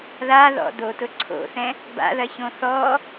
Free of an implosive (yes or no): yes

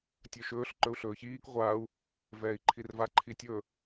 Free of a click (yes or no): no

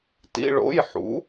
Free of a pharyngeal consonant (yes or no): no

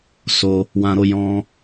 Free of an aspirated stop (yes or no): yes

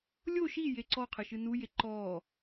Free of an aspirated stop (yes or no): no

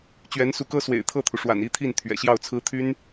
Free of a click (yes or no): yes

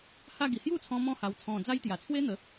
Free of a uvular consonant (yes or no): yes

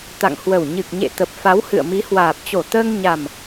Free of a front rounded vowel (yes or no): yes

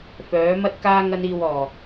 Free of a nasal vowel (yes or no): yes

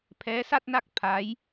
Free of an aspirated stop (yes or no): no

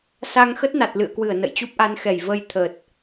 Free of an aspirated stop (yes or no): no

